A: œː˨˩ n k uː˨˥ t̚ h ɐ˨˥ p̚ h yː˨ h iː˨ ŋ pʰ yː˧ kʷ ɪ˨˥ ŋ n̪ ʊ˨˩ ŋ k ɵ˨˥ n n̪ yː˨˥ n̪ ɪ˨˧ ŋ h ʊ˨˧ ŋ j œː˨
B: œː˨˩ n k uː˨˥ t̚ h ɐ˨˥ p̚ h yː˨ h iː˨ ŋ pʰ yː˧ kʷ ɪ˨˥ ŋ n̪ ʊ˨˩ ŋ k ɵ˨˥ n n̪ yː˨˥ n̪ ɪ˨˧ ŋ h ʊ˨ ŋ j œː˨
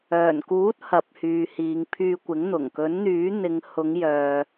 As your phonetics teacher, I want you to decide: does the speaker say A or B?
A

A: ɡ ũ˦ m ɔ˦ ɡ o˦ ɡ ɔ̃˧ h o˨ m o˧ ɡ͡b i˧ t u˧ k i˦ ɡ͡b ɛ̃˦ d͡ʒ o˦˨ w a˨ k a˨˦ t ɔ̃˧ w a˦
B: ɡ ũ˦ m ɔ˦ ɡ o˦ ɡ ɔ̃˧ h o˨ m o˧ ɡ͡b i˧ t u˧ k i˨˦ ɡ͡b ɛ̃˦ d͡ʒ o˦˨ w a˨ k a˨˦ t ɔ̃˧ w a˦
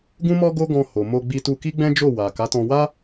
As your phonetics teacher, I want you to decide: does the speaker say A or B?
A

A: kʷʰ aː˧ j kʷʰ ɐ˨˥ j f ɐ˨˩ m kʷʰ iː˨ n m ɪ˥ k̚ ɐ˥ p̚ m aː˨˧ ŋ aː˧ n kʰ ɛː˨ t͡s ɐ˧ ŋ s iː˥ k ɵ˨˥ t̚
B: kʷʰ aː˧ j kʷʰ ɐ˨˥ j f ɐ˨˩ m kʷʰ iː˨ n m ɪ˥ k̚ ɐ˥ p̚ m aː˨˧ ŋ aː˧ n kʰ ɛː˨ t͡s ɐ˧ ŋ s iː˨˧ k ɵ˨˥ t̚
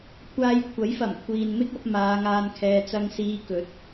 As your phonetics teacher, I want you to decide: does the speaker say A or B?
B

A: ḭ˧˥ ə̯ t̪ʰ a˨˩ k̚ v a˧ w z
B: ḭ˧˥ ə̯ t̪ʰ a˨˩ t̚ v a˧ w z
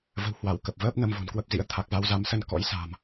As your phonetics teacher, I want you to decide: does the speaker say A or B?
A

